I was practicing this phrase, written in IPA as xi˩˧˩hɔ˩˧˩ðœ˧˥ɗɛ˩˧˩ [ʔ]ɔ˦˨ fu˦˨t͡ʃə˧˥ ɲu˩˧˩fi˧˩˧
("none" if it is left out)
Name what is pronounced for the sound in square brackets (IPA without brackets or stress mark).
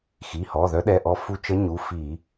ʔ